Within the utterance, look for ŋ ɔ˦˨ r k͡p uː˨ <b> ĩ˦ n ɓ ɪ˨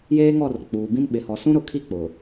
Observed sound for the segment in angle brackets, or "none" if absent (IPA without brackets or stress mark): b